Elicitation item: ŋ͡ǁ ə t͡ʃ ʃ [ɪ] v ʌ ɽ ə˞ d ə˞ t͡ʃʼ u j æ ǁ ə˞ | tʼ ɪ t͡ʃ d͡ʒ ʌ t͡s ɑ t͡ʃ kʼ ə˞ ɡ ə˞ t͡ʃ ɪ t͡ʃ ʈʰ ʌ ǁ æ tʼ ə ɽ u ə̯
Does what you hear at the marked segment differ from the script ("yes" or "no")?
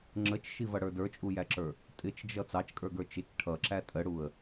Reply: yes